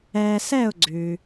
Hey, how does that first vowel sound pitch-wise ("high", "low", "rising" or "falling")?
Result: low